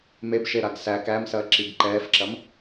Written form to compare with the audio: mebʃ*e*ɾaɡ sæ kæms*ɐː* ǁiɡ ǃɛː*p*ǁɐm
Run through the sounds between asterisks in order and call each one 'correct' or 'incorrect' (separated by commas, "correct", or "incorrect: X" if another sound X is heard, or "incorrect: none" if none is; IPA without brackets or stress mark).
correct, correct, incorrect: f